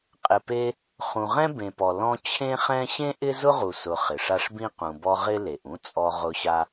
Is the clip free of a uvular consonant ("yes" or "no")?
no